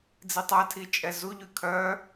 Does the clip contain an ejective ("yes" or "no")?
yes